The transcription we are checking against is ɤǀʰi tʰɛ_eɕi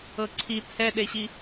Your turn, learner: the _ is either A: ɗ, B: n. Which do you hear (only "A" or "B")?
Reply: A